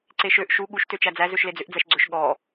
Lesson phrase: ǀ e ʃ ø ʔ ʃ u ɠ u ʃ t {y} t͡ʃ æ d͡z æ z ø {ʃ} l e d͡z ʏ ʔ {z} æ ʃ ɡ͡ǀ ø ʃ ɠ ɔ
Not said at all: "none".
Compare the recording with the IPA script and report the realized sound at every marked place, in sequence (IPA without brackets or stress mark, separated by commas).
ø, ʃ, d͡z